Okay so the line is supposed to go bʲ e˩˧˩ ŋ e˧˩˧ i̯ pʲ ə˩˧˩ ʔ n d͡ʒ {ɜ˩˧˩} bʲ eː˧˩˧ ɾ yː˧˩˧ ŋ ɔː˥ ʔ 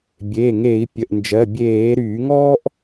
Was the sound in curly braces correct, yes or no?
yes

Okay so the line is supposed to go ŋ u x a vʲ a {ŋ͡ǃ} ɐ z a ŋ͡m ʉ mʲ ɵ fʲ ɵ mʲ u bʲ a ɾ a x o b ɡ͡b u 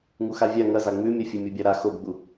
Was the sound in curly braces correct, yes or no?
no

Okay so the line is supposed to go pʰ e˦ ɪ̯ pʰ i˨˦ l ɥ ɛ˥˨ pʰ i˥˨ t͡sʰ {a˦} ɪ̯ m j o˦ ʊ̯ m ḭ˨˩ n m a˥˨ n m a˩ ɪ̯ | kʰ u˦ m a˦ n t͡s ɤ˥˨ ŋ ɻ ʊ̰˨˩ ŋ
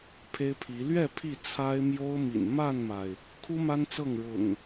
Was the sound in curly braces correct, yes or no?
yes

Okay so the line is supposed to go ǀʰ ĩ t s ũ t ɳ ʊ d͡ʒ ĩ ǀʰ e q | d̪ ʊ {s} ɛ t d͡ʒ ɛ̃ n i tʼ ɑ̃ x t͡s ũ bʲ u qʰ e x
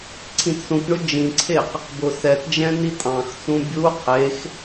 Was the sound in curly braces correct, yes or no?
yes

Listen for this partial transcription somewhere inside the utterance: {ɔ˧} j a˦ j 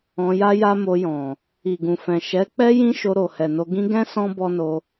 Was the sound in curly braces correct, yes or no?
no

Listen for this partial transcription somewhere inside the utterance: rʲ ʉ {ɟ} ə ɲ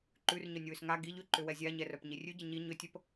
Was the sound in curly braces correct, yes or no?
yes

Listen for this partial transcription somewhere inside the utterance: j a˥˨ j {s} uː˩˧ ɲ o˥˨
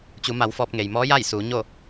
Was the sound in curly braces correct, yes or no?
yes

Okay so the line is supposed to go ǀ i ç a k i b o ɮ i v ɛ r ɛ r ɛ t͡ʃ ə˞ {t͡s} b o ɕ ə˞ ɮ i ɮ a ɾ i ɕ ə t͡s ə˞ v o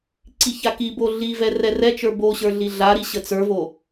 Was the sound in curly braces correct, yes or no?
no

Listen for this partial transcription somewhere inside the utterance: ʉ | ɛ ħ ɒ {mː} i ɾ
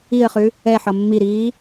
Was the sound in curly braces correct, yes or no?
yes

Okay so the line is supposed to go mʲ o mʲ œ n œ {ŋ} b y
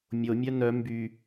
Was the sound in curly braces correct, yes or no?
no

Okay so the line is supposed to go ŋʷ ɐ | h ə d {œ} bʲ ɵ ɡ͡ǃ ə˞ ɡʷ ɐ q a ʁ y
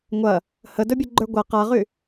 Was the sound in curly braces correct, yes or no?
no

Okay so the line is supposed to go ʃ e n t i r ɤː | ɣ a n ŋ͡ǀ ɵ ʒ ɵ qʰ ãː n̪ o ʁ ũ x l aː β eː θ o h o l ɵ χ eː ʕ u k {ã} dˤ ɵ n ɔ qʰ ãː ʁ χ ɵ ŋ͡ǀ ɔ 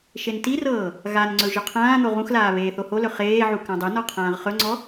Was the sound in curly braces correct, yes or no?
yes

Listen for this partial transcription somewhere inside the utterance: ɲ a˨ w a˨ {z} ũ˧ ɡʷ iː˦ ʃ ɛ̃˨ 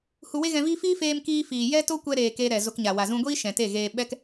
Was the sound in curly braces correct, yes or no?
yes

